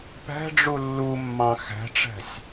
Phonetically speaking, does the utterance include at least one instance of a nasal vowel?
yes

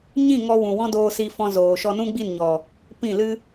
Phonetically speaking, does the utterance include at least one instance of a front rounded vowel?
no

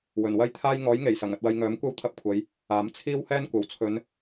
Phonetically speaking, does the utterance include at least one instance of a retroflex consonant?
no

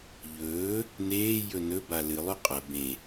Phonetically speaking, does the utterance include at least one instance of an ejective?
yes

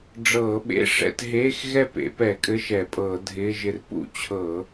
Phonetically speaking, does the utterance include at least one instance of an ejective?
yes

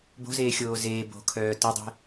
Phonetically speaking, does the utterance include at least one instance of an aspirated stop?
yes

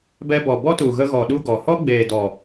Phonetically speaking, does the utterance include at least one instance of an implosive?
yes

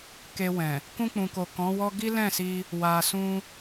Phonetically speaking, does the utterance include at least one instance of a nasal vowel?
yes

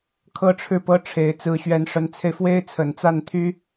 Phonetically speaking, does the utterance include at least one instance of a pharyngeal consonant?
no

